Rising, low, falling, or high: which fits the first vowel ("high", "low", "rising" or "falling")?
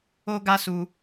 high